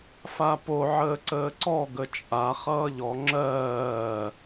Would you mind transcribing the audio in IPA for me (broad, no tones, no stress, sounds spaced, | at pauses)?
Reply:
f a p o ʕ əː ǀ əː ǀ ɔ ɡ ə t͡ʃʼ a χ ʌː ʎ ɔ ŋ͡ǁ ɜː